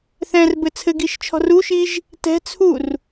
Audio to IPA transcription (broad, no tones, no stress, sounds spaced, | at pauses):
θ ɛ̃ r b ɘ t͡sʰ ɘ ɡ i ʃ t͡ʃʰ ɔ̤ r u ʃ i ʒ | t ɛ̤ t͡sʰ u r